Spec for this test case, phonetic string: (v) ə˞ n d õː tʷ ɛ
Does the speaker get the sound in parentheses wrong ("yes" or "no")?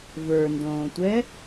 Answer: no